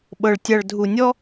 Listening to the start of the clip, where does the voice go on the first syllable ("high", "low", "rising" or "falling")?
low